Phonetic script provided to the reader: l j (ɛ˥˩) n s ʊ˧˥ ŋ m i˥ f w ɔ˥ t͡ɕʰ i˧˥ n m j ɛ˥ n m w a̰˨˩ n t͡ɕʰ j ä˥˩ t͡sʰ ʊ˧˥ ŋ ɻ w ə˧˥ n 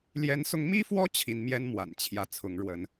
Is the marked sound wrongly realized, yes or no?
yes